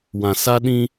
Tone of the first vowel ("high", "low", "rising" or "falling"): low